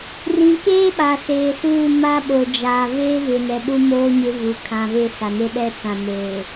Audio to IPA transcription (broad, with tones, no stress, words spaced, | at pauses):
rĩ˨keː˦ ɓa˨seː˨suː˦˨ ma˦ɓo˨d͡ʒa˨ veː˦vɪ˨nɛ˨ ɗu˦moː˦ ɲɪ˦vu˨ kʰã˨ ve˦sa˨ne˦ ɗɛ˦t͡sã˨ neː˨